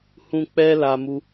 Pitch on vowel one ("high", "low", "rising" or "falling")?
high